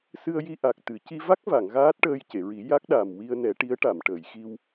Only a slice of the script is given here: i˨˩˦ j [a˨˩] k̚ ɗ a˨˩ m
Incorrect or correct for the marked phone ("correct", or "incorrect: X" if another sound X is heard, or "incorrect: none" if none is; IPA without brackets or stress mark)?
incorrect: a˦˥